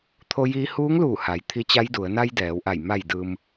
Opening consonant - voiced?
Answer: no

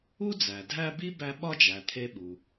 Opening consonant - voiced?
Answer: yes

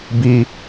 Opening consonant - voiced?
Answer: yes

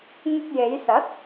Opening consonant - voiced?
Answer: yes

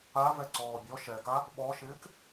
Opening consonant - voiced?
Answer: yes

